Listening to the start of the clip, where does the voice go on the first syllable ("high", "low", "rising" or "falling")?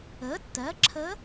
rising